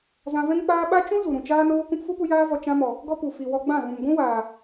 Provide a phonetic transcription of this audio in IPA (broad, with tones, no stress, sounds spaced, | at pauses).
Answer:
z ã˧ v ɛ̃˦ ŋ k͡p aː˦ ɓ a˦ t͡ʃ ũ˦ z u˨ ɾ ũ˨ t͡ʃ aː˧ n oː˧ k ũ˧ p f u˦ p u˧ j aː˧ v ɔ˨ t͡ʃ ã˧ m ɔ˨ | ɡ ɔ˦ p u˨ f i˨ w ɔ˧ ɡ͡b ã˦˨ ɣ ũ˨ m ɡʷ ũ˦ w aː˨